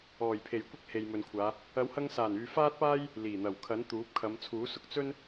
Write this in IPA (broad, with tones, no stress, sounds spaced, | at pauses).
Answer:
ɔː˨˩ j pʰ e˨˩ j kʷ ɪ˥ k̚ h e˨ j m ɵ˨ n kʷʰ aː˨˧ | ɐ˨˥ w h ɐ˧ ŋ s aː˨˩ n yː˨ f aː˥ t̚ p aː˥ j | l iː˨˩ n̪ ɐ˨˩ w kʰ ɐ˨˥ n t̪ uː˨˥ p̚ kʰ ɐ˨˧ m t͡sʰ uː˨˥ s ʊ˨ k̚ t͡s ɵ˥ n